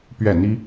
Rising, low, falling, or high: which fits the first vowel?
falling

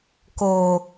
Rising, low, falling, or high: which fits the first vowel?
low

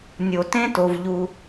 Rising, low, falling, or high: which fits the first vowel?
low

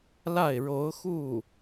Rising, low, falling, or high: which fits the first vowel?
falling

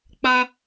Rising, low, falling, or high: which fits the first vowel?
high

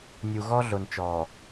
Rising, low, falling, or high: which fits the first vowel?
low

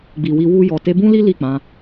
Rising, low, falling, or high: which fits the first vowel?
low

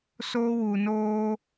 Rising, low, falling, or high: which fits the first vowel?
high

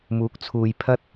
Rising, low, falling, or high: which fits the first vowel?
rising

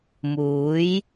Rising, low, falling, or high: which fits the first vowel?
rising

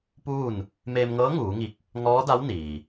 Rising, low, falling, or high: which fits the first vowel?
falling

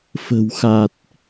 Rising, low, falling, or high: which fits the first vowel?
low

